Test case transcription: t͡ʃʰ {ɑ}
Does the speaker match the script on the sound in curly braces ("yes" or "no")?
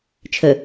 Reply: no